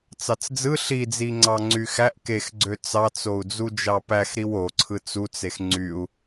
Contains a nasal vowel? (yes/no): no